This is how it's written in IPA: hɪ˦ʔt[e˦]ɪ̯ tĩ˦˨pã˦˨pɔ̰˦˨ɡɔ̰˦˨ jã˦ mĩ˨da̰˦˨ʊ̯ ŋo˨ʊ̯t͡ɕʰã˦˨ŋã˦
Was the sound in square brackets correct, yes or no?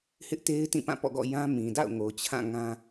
yes